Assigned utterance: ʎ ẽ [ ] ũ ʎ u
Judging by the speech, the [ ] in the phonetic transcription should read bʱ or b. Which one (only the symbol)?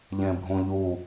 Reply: bʱ